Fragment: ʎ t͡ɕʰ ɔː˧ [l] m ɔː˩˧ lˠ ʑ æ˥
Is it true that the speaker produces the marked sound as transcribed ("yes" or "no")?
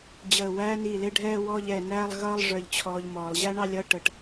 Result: no